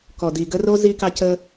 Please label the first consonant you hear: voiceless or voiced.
voiceless